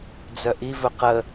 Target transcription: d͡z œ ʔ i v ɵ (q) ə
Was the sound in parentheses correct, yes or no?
yes